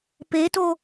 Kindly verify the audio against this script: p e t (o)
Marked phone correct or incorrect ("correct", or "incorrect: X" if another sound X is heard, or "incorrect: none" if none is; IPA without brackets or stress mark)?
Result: correct